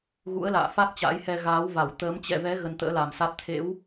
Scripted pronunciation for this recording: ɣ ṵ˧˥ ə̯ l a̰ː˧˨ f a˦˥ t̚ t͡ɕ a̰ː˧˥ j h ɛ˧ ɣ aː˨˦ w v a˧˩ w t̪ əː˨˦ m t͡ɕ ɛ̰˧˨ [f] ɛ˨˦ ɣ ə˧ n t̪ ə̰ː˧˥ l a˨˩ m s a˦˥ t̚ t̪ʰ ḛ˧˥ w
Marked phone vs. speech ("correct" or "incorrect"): incorrect